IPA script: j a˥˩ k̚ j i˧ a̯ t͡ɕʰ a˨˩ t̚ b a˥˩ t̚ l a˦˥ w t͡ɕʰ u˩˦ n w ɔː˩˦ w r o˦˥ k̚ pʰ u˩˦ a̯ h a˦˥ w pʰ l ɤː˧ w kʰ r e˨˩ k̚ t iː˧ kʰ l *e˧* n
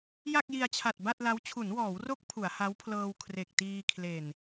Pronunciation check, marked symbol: incorrect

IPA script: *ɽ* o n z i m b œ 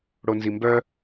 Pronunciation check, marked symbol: correct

